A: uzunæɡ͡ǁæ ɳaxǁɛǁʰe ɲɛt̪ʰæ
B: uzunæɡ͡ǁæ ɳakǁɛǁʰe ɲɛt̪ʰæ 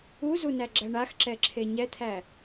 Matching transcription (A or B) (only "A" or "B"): A